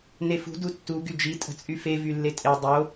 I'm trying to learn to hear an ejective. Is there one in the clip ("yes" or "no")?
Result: yes